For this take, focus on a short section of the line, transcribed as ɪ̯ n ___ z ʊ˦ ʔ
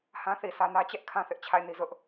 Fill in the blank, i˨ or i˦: i˦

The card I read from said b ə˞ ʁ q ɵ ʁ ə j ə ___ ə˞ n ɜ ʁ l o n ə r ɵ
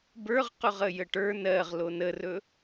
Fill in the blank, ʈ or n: ʈ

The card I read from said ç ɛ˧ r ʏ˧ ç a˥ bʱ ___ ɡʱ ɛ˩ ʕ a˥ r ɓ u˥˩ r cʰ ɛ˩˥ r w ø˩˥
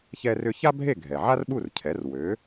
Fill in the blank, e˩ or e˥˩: e˥˩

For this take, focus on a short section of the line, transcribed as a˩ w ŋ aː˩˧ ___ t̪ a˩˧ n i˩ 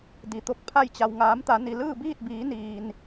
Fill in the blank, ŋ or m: m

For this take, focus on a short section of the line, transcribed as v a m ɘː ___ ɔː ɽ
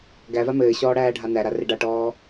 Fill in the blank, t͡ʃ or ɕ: ɕ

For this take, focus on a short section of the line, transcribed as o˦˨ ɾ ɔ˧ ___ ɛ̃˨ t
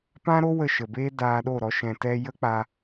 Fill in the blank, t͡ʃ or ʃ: ʃ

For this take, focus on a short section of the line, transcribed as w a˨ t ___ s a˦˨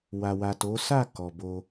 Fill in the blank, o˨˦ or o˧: o˨˦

